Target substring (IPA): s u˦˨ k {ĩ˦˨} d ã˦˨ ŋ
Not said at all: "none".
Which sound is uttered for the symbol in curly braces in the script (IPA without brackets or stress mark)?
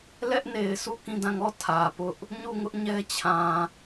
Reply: ĩ˦˨